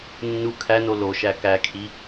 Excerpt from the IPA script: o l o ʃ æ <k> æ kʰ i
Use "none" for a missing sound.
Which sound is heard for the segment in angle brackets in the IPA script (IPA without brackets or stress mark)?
k